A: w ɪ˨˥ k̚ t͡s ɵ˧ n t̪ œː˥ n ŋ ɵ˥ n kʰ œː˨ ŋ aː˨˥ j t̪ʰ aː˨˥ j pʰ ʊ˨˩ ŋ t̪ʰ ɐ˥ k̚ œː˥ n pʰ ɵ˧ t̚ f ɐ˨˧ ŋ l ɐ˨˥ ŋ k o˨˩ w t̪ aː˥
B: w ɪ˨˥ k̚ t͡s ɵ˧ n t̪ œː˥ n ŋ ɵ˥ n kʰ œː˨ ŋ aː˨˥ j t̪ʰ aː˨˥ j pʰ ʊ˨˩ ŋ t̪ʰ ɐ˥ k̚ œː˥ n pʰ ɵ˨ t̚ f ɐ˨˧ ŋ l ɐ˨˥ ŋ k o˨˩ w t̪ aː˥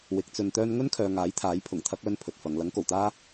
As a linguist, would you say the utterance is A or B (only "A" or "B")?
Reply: B